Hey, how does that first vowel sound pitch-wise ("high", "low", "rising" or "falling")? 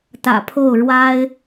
low